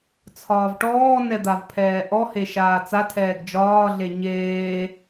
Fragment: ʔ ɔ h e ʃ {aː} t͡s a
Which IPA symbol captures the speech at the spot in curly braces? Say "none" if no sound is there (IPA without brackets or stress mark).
aː